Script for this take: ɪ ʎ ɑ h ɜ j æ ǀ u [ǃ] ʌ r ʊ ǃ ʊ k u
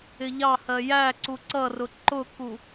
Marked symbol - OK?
no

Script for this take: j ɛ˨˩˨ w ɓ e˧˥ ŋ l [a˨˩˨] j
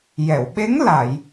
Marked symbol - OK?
yes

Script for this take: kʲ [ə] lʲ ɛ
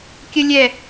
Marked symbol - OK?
yes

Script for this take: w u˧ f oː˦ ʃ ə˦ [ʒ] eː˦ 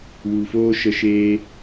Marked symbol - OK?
no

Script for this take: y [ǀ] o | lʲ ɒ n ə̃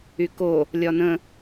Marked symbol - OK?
no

